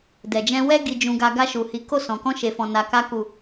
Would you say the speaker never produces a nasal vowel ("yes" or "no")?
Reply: no